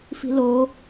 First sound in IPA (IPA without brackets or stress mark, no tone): f